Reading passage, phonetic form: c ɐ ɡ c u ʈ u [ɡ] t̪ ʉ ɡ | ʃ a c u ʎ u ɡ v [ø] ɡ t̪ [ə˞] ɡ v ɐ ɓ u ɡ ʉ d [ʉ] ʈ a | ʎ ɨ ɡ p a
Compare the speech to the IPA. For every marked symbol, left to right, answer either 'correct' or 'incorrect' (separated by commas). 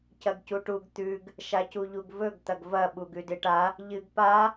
correct, incorrect, incorrect, incorrect